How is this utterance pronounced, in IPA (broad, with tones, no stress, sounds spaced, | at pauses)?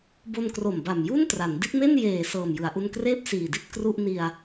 b o˧ n k r o˨˩ m b a˨˩ m j u˥˩ n t r a˩˦ n d i˦˥ t̚ m e˥˩ n j eː˨˩ s ɤː˨˩ m j ɯ˩˦ a̯ ʔ u˧ n k r eː˥˩ p̚ s iː˨˩ d i˥˩ t̚ k r u˥˩ ʔ n i˧ a̯